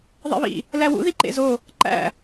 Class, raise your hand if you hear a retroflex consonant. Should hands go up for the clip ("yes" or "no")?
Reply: no